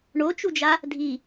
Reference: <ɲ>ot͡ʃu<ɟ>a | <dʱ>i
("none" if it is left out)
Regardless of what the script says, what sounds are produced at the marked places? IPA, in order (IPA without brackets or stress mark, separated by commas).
ɳ, d͡ʒ, dʱ